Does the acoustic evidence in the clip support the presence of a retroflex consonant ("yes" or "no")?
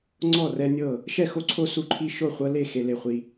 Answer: no